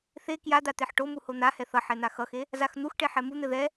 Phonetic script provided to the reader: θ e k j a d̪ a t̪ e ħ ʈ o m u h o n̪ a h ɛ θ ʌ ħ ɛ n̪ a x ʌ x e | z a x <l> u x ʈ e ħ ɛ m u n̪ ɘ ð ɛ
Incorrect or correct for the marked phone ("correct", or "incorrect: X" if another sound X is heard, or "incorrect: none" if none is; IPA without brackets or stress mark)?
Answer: incorrect: n̪